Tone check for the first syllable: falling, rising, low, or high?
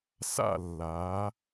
falling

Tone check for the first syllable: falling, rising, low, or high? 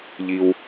low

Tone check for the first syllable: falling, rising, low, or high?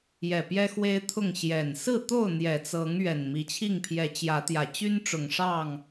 low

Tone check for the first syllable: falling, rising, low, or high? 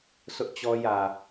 high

